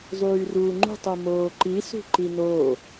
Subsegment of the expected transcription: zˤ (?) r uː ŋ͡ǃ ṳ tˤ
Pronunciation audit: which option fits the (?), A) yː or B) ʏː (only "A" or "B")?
A